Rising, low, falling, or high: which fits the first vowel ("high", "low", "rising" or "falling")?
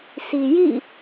low